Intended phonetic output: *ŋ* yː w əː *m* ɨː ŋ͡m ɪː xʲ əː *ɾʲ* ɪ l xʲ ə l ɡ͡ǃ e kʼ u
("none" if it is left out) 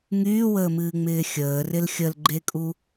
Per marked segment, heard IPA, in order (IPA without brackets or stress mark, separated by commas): ŋ, m, r